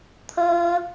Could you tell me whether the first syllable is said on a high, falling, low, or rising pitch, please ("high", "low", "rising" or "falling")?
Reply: high